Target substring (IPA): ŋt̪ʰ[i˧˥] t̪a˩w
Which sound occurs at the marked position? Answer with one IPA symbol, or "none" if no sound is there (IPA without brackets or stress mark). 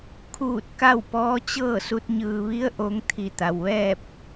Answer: i˧˩